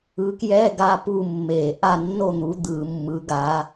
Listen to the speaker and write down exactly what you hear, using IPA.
ɯ˨˦ k j ɛ˧˥˧ ɡ a˧˥˧ p u˥˨ mː e˧˩˧ ʔ a˥˨ nː o˥˨ n̪ u˨˦ d̪ ɯ˧˩˧ mː ɯ˨˦ ɡ a˨˦

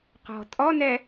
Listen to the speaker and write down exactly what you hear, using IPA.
q ɔ̤ tʼ ɔ n ɛ

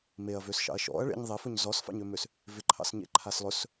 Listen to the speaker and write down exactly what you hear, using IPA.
m e ɐ̯ v ø s ʃ ɑ̰ ɐ̯ ʃ ɔ̰ ɐ̯ ɭ ḛ ɲ ðˤ e f ɵ ɲ z ɔ s f ɑ̰ ɲ ø m ø s | v ɪ ǃʰ ɑ̰ s ɲ ḛ ǃʰ a s lˠ ɵ s

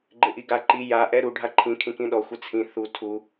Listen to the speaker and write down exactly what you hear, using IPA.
ɡ͡ǃ ɪ ʔ i ɡ a ǃ i j a ʔ ɛ ɾ u ɖʱ a ǃʰ ĩ kʰ ĩ k ĩ ɗ ɔ xʷ ɪ t͡sʰ ĩ θ u tʰ u

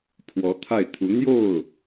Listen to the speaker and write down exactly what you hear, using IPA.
pʰ w ɔ˧˥ t̪ʰ a˥˩ ɪ̯ t̪ʰ u˧˥ n̪ j o˥˩ ʊ̯

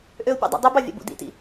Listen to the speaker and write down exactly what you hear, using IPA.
ʔ ø ʊ̯ pʲ ṵ dˤ ɑ̰ dˤ y b ɑ vʲ æ̰ b ṵ d ḭ t ḭ

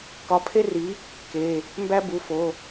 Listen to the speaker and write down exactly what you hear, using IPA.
k ɒ˨˥ pʰ e˥ r i˨˥ | k e˩˧˩ | m b æ˥ b u˩˧˩ f o˩˧˩

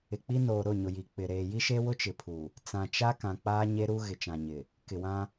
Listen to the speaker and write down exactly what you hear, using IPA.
ɪ˨ k͡p i˦ n oː˨ ɾ ʊ˦˨ ɲ ʊ˨ j i˨ k͡p ɪ˨ ɾ eː˨ j i˦ ʃ e˦ w ʊ˦ t͡ʃ ɪ˨ pʰ u˨ | t͡s ã˨ t͡ʃ a˦ k ã˨ k͡p aː˦ ɲ e˦ ɾ u˦ ɣ ɪ˨ t͡ʃ ã˨ ɲ ɪ˨ | k ɪ˨ w ã˦

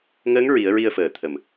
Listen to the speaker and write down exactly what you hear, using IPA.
ŋ əː˧˥ ŋ ɹ i˨˩˦ ə̯ ɹ i˧ ə̯ f əː˨˩ t̪ʰ ə˨˩˨ m

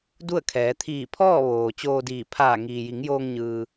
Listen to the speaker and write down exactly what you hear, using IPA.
d u˥˨ ə̯ kʰ ɛː˩˧ t̪ʰ iː˧˩ pʰ ɔː˥˨ ʋ oː˩ t͡ɕ oː˧ d iː˧˩ pʰ aː˧˩ ŋ iː˩ j i˩˧ ŋ j oː˧ ŋ ɲ ɯː˩

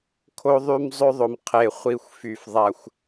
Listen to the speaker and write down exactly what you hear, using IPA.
kʰ o˦ ðˤ y˦ m zˤ ø˦ ðˤ o˨ m qʰ e˨ χʷ i˨ xʷ f y˨ f ðˤ a˨ xʷ

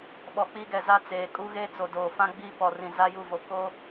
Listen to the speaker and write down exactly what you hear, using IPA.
ɓ ɔ˨ k͡p iː˦ ɡ ɛ˨ z a˦ t͡s eː˨ kʼ u˦ ɣ eː˦ t͡s o˨ d oː˨ f ã˦ ɡ͡b iː˦ p ɔ˨ r ĩ˨ z a˦ j u˦˨ v o˨ k o˦

